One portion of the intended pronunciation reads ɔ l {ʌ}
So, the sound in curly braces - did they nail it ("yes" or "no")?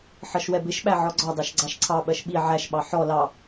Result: no